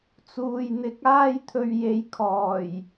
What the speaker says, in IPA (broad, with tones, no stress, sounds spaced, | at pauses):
t͡s uː˨ j n̪ ɪ˧ k̚ aː˥ j t̪ʰ ɵ˧ ɥ j e˨˧ j kʰ ɔː˨˩ j